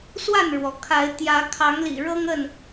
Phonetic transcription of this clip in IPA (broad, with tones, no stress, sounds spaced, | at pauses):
s w a˥˨ n ɻ w ɔ˩ kʰ a˨˦ ɪ̯ t̪ j ä˨˦ kʰ ɑ˨˦ ŋ l ḭ˨˩ ɻ ɤ˦ ŋ ə˥˨ n